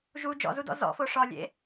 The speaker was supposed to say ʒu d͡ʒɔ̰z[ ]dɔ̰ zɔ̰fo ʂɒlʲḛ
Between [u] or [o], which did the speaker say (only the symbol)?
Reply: u